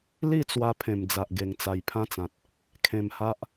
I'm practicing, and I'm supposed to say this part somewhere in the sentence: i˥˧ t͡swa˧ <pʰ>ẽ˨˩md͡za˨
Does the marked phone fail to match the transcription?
no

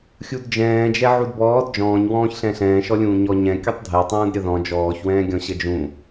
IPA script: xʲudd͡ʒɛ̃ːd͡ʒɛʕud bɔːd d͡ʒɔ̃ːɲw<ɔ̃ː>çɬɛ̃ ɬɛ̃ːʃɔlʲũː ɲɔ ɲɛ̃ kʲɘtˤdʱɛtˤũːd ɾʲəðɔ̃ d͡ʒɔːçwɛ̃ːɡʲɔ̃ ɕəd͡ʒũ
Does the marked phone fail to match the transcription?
no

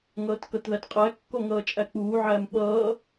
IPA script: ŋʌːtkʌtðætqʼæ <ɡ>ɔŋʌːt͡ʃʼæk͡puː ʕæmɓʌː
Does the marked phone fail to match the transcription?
yes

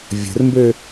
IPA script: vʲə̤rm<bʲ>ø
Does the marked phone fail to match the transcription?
yes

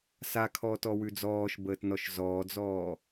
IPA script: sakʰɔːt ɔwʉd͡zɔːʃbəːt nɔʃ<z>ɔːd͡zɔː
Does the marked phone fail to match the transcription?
no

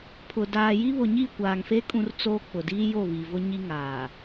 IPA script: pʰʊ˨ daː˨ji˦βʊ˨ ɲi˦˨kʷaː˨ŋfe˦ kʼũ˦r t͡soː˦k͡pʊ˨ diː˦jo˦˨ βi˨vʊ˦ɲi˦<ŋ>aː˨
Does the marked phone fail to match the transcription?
no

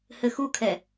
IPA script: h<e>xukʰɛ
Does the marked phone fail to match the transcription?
yes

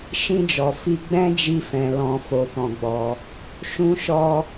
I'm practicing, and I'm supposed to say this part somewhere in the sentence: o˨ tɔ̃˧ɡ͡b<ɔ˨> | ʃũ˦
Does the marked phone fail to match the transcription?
yes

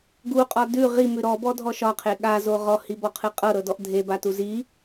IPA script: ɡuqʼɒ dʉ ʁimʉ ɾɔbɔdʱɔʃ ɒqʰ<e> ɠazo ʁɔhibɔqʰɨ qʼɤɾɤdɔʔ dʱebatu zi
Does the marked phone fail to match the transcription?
no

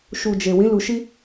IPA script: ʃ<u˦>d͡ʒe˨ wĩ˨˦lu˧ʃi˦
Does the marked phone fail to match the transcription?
yes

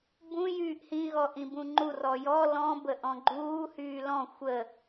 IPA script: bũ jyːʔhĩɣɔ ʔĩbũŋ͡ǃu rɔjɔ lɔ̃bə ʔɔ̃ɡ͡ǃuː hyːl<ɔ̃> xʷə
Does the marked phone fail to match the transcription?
no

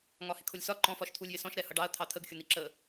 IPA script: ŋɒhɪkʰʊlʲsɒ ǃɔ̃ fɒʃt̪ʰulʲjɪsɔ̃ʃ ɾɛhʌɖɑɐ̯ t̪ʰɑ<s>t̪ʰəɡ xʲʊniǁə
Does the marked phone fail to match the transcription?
yes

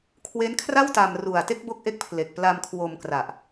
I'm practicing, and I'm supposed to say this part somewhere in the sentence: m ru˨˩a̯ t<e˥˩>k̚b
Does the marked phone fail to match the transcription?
no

